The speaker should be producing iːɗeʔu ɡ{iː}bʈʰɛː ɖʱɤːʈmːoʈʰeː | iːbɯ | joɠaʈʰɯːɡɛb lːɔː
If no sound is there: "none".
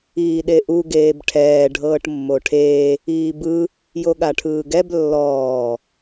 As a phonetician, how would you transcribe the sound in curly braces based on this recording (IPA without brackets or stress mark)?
eː